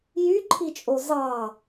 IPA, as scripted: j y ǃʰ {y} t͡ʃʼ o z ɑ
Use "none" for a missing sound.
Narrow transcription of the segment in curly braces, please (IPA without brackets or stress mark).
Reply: i